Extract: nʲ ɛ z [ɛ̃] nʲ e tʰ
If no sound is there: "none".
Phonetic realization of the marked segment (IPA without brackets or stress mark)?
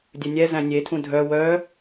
æ̃